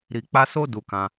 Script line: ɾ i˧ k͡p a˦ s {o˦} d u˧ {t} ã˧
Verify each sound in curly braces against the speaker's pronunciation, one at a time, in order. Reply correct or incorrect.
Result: correct, incorrect

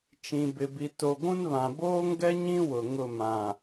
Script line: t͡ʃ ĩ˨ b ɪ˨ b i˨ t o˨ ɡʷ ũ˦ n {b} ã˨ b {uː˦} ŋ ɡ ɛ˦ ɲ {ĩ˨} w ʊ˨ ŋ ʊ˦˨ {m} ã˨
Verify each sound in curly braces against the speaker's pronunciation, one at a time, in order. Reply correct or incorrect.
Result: incorrect, incorrect, incorrect, correct

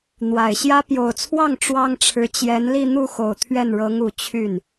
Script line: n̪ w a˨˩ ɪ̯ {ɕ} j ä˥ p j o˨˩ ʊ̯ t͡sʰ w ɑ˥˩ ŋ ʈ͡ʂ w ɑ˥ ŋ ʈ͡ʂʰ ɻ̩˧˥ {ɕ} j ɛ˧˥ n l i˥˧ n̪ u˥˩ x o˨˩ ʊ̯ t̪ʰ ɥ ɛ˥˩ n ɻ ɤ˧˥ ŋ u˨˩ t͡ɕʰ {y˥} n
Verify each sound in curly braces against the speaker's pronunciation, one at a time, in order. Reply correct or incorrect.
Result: correct, incorrect, incorrect

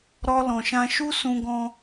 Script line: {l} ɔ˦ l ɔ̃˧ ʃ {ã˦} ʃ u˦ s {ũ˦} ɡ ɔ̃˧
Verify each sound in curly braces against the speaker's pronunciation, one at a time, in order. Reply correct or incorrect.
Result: incorrect, correct, incorrect

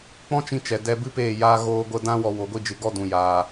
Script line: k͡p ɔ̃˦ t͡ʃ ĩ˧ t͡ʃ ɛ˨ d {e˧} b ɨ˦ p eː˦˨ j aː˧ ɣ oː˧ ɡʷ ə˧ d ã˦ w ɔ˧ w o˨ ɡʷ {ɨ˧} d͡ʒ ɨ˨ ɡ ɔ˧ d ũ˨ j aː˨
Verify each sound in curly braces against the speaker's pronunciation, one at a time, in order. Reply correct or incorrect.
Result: incorrect, incorrect

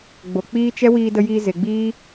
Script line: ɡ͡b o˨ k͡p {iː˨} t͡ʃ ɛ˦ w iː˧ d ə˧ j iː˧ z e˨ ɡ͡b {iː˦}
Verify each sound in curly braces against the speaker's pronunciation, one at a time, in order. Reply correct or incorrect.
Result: incorrect, correct

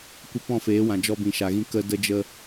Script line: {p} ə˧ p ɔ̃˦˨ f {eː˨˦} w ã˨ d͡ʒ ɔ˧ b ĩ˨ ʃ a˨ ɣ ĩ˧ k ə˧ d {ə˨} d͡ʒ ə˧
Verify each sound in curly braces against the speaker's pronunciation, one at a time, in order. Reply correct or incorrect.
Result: incorrect, correct, incorrect

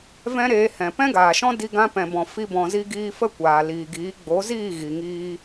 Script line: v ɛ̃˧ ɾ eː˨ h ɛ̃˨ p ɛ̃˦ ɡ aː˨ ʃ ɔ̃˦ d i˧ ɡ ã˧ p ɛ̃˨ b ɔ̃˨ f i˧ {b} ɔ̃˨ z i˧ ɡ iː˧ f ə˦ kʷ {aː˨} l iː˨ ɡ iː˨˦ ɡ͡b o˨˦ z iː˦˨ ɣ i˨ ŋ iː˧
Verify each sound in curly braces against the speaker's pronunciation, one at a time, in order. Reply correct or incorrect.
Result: correct, correct

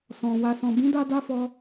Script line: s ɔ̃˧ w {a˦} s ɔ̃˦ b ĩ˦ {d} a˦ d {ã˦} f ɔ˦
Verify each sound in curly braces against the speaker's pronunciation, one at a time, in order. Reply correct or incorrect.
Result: correct, correct, incorrect

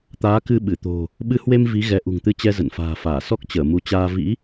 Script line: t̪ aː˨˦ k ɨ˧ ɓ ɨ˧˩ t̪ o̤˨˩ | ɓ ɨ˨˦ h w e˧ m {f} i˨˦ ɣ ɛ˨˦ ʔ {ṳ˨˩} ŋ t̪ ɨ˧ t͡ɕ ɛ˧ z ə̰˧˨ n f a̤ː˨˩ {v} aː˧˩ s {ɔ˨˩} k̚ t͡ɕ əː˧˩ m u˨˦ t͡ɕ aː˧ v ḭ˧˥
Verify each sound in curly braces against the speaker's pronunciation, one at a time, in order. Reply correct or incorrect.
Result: incorrect, correct, incorrect, incorrect

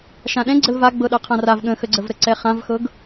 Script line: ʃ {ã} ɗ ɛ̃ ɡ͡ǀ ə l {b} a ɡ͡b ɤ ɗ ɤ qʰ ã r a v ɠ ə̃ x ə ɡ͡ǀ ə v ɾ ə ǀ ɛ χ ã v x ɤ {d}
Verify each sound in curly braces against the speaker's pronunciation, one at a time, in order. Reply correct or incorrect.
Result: correct, incorrect, incorrect

